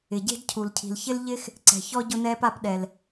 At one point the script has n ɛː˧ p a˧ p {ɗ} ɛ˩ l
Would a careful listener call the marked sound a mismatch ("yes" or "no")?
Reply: no